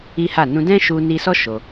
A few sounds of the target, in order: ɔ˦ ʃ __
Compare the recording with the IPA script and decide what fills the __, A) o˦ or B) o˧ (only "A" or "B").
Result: B